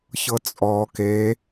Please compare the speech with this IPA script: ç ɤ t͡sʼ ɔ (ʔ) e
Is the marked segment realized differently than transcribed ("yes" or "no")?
yes